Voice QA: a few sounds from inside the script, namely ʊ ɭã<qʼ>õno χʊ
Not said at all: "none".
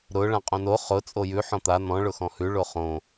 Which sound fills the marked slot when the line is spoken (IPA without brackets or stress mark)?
qʼ